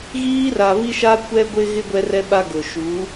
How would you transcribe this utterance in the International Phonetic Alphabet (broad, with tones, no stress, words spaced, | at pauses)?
ɣiː˦ra˨βi˦ʃa˦ kʷɛ˦ɡʷɪ˦ɣɪ˦ ɡʷɛ˦rɛ˦ɓa˦ɡʊ˨ ʃu˨˦